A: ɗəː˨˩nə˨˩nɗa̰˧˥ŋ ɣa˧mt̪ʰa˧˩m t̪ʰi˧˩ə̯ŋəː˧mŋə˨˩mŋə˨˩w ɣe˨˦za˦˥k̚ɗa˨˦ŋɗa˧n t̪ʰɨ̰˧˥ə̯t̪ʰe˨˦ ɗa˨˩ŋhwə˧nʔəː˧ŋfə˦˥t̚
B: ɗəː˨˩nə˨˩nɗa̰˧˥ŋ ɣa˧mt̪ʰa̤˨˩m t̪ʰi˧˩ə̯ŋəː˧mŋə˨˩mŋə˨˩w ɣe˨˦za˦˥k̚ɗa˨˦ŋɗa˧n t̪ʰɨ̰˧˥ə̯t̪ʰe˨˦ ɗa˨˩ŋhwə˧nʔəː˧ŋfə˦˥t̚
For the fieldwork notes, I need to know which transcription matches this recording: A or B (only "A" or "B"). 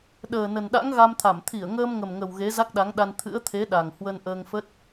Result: A